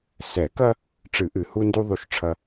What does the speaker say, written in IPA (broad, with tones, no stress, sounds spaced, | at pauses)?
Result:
s ɛ˨˩˦ k ɐ˦ | ʈ͡ʂ ɨ˨˩˦ ʔ ɨ˨˩ h u˦ n d u˦ ðˤ u˦ ʃ ʈ͡ʂʰ ɐ˦